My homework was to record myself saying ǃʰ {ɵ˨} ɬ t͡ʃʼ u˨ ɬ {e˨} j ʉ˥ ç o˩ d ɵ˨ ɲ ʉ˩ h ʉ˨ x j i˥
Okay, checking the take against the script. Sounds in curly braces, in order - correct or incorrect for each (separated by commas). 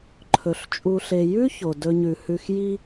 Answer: incorrect, correct